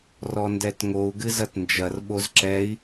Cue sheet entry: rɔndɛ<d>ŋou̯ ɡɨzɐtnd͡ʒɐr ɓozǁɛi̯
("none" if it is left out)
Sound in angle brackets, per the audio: t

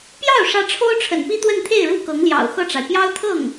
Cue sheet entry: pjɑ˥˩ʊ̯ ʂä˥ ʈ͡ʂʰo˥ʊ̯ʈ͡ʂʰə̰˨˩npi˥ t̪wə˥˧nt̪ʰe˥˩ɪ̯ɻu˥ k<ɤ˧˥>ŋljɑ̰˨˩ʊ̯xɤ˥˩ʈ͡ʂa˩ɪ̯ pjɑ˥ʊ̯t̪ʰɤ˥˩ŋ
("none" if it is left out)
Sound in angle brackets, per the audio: ɤ˧˥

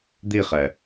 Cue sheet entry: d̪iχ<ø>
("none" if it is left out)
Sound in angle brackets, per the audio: ɛ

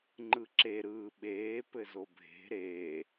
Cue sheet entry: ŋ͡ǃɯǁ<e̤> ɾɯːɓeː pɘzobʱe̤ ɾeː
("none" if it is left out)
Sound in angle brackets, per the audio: e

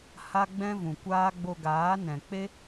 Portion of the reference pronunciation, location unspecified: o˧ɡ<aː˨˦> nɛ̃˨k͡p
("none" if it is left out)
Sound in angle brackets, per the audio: aː˨˦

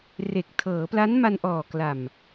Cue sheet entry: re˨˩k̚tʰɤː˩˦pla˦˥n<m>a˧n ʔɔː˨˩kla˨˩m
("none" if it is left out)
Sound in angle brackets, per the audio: m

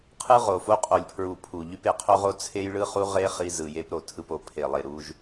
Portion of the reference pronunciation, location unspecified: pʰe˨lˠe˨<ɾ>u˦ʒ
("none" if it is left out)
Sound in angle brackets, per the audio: ɾ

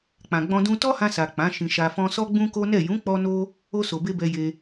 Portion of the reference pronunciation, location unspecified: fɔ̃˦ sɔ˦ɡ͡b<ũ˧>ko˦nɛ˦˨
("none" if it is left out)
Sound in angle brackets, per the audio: ũ˦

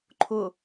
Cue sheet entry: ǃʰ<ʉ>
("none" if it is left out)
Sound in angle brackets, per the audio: ʊ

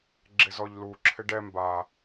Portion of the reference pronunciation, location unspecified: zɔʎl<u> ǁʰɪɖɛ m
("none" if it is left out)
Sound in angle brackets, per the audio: u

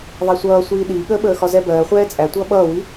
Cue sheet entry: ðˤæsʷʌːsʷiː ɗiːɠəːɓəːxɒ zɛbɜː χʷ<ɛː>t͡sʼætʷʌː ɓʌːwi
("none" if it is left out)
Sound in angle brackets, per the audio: ɛː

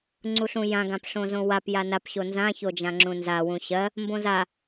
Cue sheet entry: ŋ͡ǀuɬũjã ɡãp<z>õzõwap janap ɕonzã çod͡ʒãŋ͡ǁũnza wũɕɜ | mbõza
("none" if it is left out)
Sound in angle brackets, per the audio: ɬ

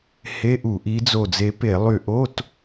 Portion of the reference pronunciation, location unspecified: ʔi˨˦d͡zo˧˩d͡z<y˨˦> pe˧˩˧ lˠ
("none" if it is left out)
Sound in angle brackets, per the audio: e˨˦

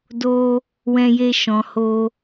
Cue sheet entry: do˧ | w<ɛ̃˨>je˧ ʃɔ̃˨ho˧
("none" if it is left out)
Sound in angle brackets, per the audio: ɛ̃˧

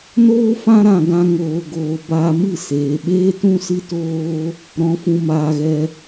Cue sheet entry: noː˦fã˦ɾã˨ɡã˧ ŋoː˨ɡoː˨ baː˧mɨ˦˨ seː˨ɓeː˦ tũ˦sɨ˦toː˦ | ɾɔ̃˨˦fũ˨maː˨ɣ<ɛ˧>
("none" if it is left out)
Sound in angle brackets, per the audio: ɛ˧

